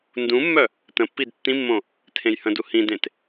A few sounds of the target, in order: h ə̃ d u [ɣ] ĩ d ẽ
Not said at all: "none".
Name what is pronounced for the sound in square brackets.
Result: h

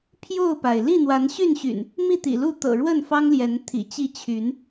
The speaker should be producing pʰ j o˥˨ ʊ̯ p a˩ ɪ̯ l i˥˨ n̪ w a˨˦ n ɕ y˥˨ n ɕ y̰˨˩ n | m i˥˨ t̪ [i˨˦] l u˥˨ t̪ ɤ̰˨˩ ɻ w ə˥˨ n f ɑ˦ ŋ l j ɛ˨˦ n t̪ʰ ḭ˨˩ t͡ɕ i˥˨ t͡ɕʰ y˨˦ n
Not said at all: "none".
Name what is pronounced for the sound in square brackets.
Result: ḭ˨˩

